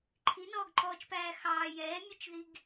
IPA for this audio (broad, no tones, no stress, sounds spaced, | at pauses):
ǃʰ i n ɔː ɡ ǃ ɔː t͡ʃ p æː x ɑː j ɛː mʲ ʉ t͡ʃ ð i ɡ